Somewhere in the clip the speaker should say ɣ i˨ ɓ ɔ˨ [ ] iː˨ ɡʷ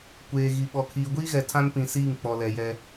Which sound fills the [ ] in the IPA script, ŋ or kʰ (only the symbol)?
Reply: kʰ